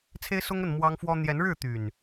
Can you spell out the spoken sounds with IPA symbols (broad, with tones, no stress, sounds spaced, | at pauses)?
t͡sʰ e˦ ɪ̯ s ʊ˦ ŋ ə˥˨ n m w ɑ˦ ŋ f w ɔ˦ n̪ j ɛ˨˦ n ɻ ɻ̩˥˨ t̪ y˨˩ n